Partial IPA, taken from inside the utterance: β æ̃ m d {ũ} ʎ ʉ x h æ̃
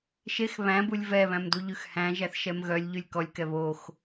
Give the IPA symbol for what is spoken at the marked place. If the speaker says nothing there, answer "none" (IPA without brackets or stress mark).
u